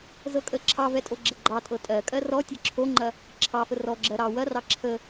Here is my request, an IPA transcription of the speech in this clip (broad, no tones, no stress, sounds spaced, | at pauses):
z ɤ kʼ ə ǁʰ ɑ v ɛ tʼ o ɡ͡ǁ ɐ ɡ͡ǃ ɑ tʼ ɤ tʼ ɜ kʼ ɜ r ɔ tʲ ɤ ǁʰ o ŋ͡ǃ ɐ | ǁʰ ɑ f ə r ɔ ɡ͡ǁ ɜ ɾ ɑ w ɐ r ɑ ǁʰ ə